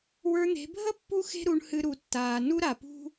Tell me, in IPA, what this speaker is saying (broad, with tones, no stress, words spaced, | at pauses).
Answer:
wə˞˧n̪e̤˨˦ bʱə˦ pːu˦xe̤˦ ɾu˧ɳhɨ˧ ɾu˨tːaː˨ nu˦ ɾa˨pṳ˦